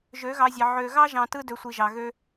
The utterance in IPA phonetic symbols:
ʒ ø˨˦ ɣ ɑ˧ zʲ ɑ˨ ʕ ø˨ ɣ ɑ˦ ʒ ɑ̃˨ t ɯ˧ d ø˨ sʷ i˨ ʒ ɑ˨ ɣ ø˦

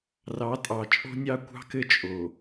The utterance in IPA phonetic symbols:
r ɑ˨˦ tʼ ɑ˨ t͡ʃʼ o̤˦ nʲ ɑ˦ kʷ ɑ̤˦ k ɘ˦ t͡ʃʼ o˨

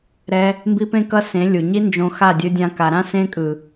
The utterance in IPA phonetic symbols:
ɾ ɛ˧ | m b i˦ p ẽ˦ k ʌ˦ s ẽ˨˦ lʲ u˨ ɲ i˦ n d͡ʒ õ˧ x a˦˨ dʲ ɯ˧ dʲ ã˧ k a˨ ɾ ã˦ s ẽ˧ kʼ ɯ˨

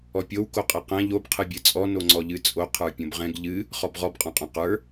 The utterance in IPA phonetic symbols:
ɔ pʲ o w k o qʼ ɛ q ɛ̃ ʎ o b qʰ ɨ bʲ ɨ t͡sʼ ɔ n o ŋ͡ǀ ɔ ʎ ɨ t͡sʼ o qʰ ə˞ pʲ õ b ʁ ɛ̃ ɡ ʎ ɨ | χ ɔ b ʁ ɔ b qʼ ɔ̃ qʼ õ q ə˞

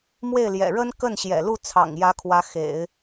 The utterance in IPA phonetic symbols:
m w e˥˩ ɪ̯ l j ɛ̰˨˩ ɻ ə˥ n k ə˥˩ n ɕ j ɛ̰˨˩ l u˥˩ t͡sʰ ɑ̰˨˩ ŋ j ä˧˥ kʰ w ä˧˥ x ḛ˨˩˦ ɪ̯

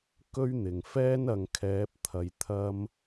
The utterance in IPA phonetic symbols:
k ɵ˥ ɥ n̪ ɪ˨˩ ŋ f ɛː˥ n ɐ˨ ŋ kʰ ɛː˨˥ p̚ t̪ʰ ɐ˨ j t̪ʰ ɐ˧ m

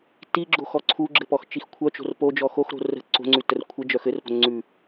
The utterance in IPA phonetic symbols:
t i ɡ͡ǁ o x ɔ ǀʰ u ɡ͡ǁ ɘ p ɔ x t͡ʃ i x kʷʰ œ t͡ʃ o̤ r p o d͡ʒ ɔ x o x ɾ o̤ r ə̤ ǀ o̤ ŋ͡ǀ ʉ t ə r kʷʰ ə d͡ʒ œ x ɘ r p o̤ ŋ͡ǀ ʉ

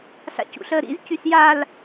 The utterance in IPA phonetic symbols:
ɬ a̰ c ṵ ɬ əː ɾ ḭ z c y s j a l

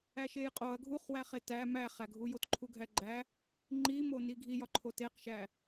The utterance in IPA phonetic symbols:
æ ʃ e j qʼ o ɐ̯ ɡʱ u χ w æ χ e t æ m æ χ æ ɡʱ u j o t ǃʰ u ɡʱ æ ɡ͡ǃ æ | ŋ͡ǃ i m o n i ɡʱ i j ɒ ǃʰ o t e q ʃ æ

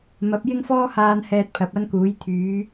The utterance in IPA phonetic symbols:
m ɐ˨˥ p̚ j ɪ˥ ŋ f ɔː˥ h aː˧ n h ɛː˧ t̚ pʰ ɐ˨˥ p̚ ɐ˥ n k uː˨˥ j t̪ʰ yː˨˥

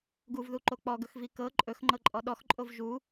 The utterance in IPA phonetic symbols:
ɡ u v ð u ǃ o k͡p ɔ ɡ ɵ x v i k ɤ ǃʼ ɵ x ŋ͡ǃ ɤ ǃʼ ɔ ɗ ɔ x ǃʼ o v ʒ u

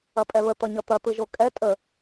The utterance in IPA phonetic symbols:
ɐ pʼ ɛ β ə t̪ ʌ ɲ ʌ t̪ ɐ t̪ ɯ ʒ o kʼ ɛ tʼ ə

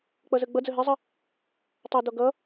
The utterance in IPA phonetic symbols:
k͡p ʌ z ə ɡ͡b ʌ d͡z ə ɦ ɪ zˤ ə | tˤ ʌ d ɔ ɡ ʌ

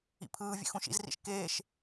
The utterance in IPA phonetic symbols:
ḭ pʰ ɯː vʲ ḛ x ũ ʃ ḭ z r ḭ ʃ k eː ʃ

